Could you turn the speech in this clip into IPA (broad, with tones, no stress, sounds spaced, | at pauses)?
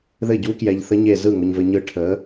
ð ɘ˥˩ ɟ u˦˥ k j ɛ˧ ʎ θ ə˦˥ ɲ e˥˧ z ɯ˥˩ ŋ ʊ˧ ɲ v ɘ˧ ɲ ɯ˦˥ ʈʰ ə˨˥